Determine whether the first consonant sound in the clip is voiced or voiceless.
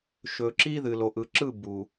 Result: voiceless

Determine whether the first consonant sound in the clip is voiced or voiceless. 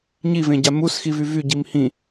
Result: voiced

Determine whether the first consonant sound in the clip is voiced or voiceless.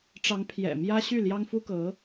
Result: voiceless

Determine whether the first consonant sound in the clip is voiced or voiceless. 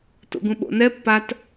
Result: voiceless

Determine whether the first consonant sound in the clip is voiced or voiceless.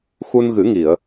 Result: voiceless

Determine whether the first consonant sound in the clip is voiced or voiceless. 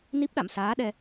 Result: voiced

